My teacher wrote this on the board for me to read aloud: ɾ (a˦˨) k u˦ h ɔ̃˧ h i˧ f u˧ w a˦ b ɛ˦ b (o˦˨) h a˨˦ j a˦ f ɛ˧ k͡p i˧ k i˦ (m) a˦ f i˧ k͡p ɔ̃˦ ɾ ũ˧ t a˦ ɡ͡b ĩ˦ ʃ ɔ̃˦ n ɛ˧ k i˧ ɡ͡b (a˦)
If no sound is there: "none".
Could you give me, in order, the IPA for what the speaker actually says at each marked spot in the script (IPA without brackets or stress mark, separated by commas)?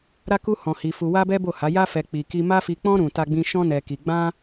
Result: a˦, o˦˨, m, ã˦